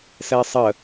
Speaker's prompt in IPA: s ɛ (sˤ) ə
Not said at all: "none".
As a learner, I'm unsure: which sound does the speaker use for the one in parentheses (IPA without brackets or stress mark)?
sˤ